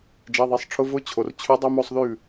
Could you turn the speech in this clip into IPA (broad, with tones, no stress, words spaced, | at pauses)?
d͡ʒɛ˩˧˩ðˤe˩˧˩sˤʈ͡ʂʰʊ˧˥˧ vʊ˧˥˧t͡ɕʰo˩rt͡ɕʰʉ˧˥ dˤʉ˧˥˧mo˥˧sˤðʉ˥˩